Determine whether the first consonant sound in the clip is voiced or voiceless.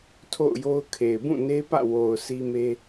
voiceless